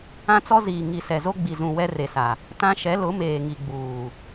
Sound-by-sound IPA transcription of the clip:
ã˦t͡sɔ˦ziː˨ ŋi˨sɛ˨zo˦ɡ͡bi˨ zũ˨ wɛ˦re˨sa˨ | tã˦ʃɛ˨˦ lʊ˨˦meː˨ŋi˨ɡ͡buː˨

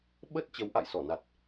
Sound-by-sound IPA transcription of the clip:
ɓə˦˥t̚ t͡ɕə˨˦wʔa̰˧˨jsɔ˧˩na˨˩t̚

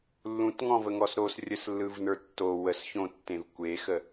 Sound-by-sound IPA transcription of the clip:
lːũtŋɔ̃vəŋɔs ɾosrʲəslːɯvnə˞ tːo wəsçõtːẽv kʷexə

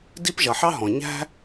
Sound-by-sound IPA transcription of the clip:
di˥pʒʌ˩ħɑ˥ ɦɔ̃˩ɲæ̤˥

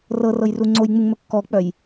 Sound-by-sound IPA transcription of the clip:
rɤrɤjru ŋ͡ǀojŋ͡muŋmɵ kːɔk͡pœj

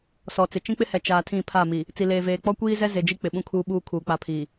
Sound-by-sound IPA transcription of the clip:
sɔ˨t͡sɪ˨ t͡ʃĩ˦k͡pɪ˦hɛ˨ t͡ʃaː˨ tʰĩ˦˨pʰa˦˨mi˨ | t͡si˨leː˨veː˨ k͡pɔ˦kʷiː˦zɛ˦ ze˨d͡ʒi˦ k͡pɪ˨ɓũ˦ kʰuː˦ɓuː˦ kʰuː˨k͡pa˦pʰiː˨

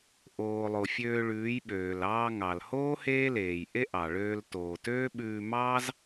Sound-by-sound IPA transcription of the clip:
ʔoː˨lˠo˨ fʲøː˧ɭʉː˨˦jɓøː˨l ɑː˧ŋɑ˨lhoː˦ heː˦leː˨j ʔe˦ʔɑ˨ɭøː˧l toː˨tøː˦ɓʉː˧ mɑː˦z

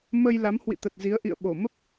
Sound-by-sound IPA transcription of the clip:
mə˧j la˨˦mhwḭ˧˨t̪ə˨˩t̚ zi˨˦ə̯ʔḭ˧˨ə̯ ɓo˧˩ mə˦˥p̚

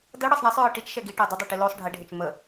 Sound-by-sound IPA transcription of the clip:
dɤɽɤsˤ ɳɛsˤɹɤ ʈit͡ʃʃɛ ɡiʈɤ dˤədˤɛʈi losˤ ɖʱeɖʱet͡ʃ mə

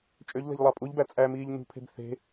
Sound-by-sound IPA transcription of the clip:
t͡ʃʼøʎ le̤ʎlˠɑpʼuʎbæ t͡sʼæmiːʎ nṳpʰe̤b θe̤

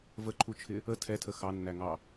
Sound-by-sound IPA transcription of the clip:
vəǃʰut͡ʃʰɪ | ə tʰɛtʰə xɑnːæŋɑ

